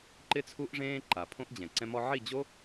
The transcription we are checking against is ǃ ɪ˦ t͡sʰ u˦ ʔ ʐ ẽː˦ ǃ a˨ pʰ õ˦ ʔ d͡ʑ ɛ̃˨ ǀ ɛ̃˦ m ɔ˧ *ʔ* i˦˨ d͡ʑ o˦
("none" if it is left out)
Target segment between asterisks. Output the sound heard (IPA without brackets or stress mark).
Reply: ʕ